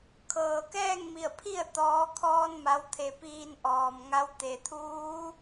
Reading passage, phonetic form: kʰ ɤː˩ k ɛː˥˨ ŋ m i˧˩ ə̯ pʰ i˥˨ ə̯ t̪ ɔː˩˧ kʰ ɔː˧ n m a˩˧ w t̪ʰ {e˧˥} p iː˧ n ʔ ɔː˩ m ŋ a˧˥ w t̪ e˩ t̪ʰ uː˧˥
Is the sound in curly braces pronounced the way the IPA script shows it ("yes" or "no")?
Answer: no